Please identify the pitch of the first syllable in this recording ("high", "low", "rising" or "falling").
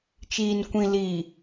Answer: low